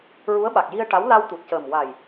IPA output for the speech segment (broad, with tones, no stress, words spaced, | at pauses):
ɹu˧˥ə̯ɓa˨˩k̚ ji˧ə̯ʈa˧˥w la˧wt̪u˨˩t̚cəː˨˩m wa˨˩j